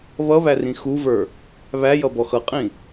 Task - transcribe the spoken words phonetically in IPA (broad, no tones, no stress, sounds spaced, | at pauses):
β ʌ β æ r ĩ x u v ə˞ | β æ j ʌ b ɔ x ʌ qʼ ĩ